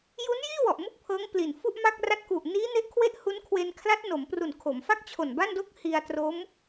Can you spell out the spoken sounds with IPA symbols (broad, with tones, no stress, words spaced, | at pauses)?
ju˦˥njiː˥˩ wɔ˨˩ʔmu˥˩k̚pʰɤː˦˥ŋpli˨˩n fu˥˩ʔma˥˩k̚ra˥˩t̚ ku˨˩ʔniː˦˥ ne˦˥ʔkʰwe˥˩ʔhu˦˥n kʰwe˧nkʰla˦˥t̚no˩˦mpru˨˩n kʰo˩˦mfa˥˩k̚t͡ɕʰo˨˩n ba˥˩ndo˥˩k̚ hi˧a̯tro˦˥m